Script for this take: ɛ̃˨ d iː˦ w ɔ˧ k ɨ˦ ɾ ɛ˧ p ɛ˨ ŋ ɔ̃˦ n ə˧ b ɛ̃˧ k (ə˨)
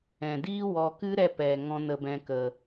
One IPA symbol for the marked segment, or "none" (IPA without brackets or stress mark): ə˨